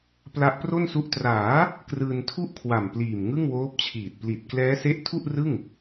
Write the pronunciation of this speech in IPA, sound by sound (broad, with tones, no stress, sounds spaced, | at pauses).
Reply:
p l a˦˥ ʔ p r o˥˩ n s u˦˥ ʔ t r aː˩˦ | k r ɯː˧ n tʰ u˥˩ ʔ kʰ w a˨˩ m p l iː˨˩ m ŋ ɯ˥˩ ŋ w oː˦˥ p̚ t͡ɕʰ iː˨˩ t̚ p l i˨˩ t̚ k l ɛː˦˥ s e˦˥ ʔ tʰ u˥˩ ʔ r ɯ˥˩ ŋ